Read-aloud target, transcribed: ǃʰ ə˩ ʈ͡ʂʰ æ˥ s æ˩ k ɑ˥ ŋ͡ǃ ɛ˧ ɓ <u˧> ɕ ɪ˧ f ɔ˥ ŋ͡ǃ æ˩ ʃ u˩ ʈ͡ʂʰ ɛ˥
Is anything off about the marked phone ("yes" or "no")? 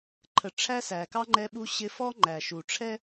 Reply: no